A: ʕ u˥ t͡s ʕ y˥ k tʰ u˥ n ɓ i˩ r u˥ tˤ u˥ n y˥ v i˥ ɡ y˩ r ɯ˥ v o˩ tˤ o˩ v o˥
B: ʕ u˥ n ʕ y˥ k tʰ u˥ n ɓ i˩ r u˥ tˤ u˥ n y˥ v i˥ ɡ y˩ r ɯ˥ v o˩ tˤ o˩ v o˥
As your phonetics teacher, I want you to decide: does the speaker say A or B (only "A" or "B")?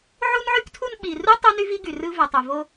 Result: B